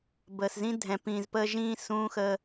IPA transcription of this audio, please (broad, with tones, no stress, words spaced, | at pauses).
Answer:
bəː˨szĩ˦ dʱɛ̃˨pĩː˨zpəː˧ ʒĩː˦ sũː˦xəː˧